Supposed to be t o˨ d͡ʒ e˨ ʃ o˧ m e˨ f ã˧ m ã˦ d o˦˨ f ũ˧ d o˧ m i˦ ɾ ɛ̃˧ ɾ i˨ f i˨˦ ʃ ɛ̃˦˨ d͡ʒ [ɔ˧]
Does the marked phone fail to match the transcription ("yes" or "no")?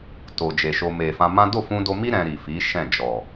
yes